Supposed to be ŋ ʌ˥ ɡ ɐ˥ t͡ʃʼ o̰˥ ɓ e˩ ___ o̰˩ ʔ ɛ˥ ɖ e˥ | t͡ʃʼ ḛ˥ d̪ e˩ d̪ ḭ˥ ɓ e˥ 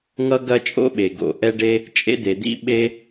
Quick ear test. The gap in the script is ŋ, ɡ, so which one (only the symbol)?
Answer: ɡ